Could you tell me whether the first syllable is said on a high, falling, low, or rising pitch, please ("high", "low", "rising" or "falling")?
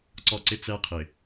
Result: high